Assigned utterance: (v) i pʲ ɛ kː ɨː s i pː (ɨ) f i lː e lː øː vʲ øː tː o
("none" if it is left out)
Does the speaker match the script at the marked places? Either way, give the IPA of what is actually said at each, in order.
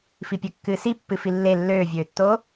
f, ɨ

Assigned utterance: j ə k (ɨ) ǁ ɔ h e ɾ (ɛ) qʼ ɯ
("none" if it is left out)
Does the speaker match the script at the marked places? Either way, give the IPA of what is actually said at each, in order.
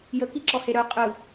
i, œ

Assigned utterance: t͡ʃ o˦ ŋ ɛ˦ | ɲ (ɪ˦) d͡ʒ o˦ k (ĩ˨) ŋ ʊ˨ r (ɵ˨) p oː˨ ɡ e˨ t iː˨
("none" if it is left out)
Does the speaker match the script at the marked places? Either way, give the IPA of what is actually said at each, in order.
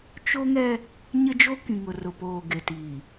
ɪ˦, ĩ˨, ʊ˨

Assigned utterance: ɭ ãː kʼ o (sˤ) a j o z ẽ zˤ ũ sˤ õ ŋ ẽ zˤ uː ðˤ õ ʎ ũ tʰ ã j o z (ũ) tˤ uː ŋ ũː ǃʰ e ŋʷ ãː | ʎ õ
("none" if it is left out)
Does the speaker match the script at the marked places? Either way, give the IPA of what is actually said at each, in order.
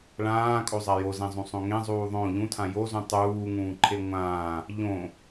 zˤ, ũ

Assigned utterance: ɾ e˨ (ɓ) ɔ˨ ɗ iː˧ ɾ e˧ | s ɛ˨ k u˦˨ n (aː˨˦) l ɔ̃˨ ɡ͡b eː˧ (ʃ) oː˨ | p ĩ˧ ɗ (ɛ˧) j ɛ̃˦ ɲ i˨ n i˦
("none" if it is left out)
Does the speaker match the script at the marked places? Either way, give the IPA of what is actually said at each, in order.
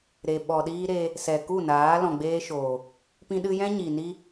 ɓ, aː˨˦, ʃ, ɨ˧

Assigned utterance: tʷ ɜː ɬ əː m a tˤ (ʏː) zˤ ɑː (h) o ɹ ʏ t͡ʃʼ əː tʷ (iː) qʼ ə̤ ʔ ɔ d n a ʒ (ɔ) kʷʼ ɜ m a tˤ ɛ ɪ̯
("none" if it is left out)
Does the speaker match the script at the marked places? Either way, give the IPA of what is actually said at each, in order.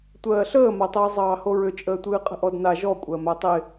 əː, h, ɨː, ɔ

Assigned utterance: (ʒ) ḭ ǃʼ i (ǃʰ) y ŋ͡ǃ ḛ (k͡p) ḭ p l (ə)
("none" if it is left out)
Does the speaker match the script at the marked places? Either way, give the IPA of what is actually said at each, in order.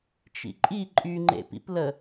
t͡ʃ, ǃʼ, p, ə

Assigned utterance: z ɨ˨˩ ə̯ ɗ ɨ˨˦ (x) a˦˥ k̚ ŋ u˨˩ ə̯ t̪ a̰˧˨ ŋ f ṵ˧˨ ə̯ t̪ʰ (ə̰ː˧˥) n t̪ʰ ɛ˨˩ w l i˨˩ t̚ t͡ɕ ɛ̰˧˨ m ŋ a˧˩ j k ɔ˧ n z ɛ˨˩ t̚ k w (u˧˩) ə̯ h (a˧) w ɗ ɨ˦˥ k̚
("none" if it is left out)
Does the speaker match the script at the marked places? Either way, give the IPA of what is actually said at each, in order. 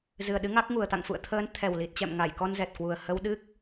ŋ, əː˨˦, u˨˩, ə˧

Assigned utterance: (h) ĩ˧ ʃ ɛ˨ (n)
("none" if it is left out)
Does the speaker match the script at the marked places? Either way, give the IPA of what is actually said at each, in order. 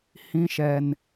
h, n

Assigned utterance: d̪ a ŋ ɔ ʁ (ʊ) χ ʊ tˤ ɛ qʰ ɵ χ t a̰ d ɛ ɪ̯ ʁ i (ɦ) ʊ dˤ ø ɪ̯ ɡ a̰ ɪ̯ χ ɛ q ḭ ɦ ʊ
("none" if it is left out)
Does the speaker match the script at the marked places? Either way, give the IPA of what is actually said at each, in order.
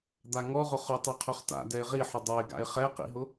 ʊ, ħ

